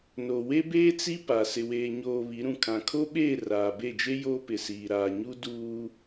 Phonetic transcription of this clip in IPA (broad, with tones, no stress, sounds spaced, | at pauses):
n o˨ w e˦ b eː˦ t͡s i˦ p a˨ s ɪ˨ w eː˨ ɲ oː˨ β i˨˦ ɾ ũ˨ kʰ ã˨ kʰ o˦ ɓ eː˦˨ r aː˨ b e˦˨ d͡ʒ e˦ j oː˦ p ɪ˨ s iː˨ ɾ aː˨ ɲ u˦ d uː˦